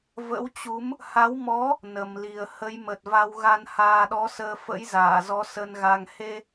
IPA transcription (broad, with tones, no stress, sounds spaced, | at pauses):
v ə̰˧˥ w t͡ɕ u˨˦ m | h a˨˦ w m ɔ˨˦ | n ə˨˩ m l i˨˩ ə̯ h ə˨˦ j m ə˨˩ t̚ v a˧ w ɣ a˧ n h aː˧ ɗ ɔ˨˦ s əː˧ f ə̰˧˥ j z aː˧˩ z ɔ˨˦ s ə˧ n ɣ a˧ ŋ h e˧